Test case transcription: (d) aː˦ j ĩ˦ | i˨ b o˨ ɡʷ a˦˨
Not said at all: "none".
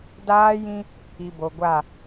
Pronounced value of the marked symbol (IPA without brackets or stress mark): d